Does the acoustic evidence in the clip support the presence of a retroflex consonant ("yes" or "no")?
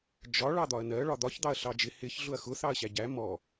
yes